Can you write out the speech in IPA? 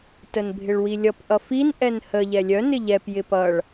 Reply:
t ə n bʱ ɪ ɭ w i lʲ ʌ p ʔ ʌ f i n ʔ ɛ n h ə ʎ ɛ lʲ œ n ɪ ʎ ɛ p j ɪ p ʌ ɭ

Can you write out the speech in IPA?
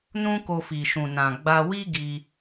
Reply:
n ũ˦ k o˧ f i˨ ʃ ũ˨ n ã˨ ɡ͡b a˧ w i˦ ɡ i˧

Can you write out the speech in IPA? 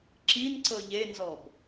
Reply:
ǁ i n ǀ ɤ ʎ e n z ɔ b

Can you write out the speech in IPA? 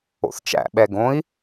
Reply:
o̰ θ t͡ʃ æ̰ ɓ ɛ ɡ õ i̯

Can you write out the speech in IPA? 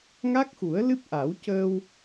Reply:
ŋ a˦˥ k̚ x u˨˩˦ ə̯ l ɨ˦˥ p̚ ʔ a˨˩˦ w c əː˧ w

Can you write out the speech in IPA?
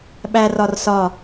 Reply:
ɓ æ r ɒ r s ɒ

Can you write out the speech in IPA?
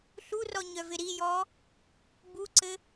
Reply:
ɬ u r ɔ ɲ œ v ɪ ɾ i j ɔː | b u ǀ ɘ

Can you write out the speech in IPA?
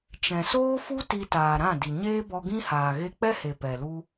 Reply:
t͡ʃ ɛ̃˨ s oː˦ f u˦ t i˧ t aː˨ ɾ ã˦˨ d i˨ ɲ eː˦ b ɔ˧ ɡ ĩ˦ h aː˨ ɣ e˧ k͡p ɛ˦ h e˨ p ɛ˨ l u˦

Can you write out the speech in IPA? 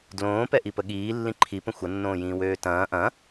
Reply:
d l õː p ɛ ʔ i p ə ɠ iː lː ĩ ǃʰ i p ə̃ xʷ ɐ nː õː j ĩː w øː t ɐ̃ː ʔ ɐ̃

